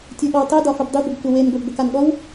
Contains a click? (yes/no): no